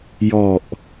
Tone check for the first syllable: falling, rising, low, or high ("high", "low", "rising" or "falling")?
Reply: low